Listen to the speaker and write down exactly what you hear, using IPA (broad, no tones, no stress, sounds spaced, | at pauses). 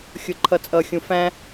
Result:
xʲ ʊ ǃʰ ʌ t͡sʼ ʌ xʲ ũ f æ̃